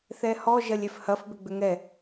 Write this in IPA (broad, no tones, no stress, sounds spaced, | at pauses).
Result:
θ ɛ h ɔ ʒ ɐ lʲ ɛ f h ɐ f b ʏ ɡ͡b ʏ ŋ ɛ